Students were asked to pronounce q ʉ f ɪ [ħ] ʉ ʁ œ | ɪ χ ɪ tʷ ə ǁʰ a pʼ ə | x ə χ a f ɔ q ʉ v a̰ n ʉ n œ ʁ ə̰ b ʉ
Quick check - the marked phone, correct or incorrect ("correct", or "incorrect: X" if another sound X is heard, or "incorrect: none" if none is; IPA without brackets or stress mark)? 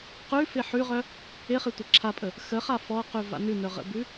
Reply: correct